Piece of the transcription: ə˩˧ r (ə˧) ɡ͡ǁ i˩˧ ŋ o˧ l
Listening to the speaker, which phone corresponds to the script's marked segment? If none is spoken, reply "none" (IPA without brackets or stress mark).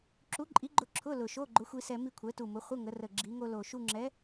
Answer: ə˨˩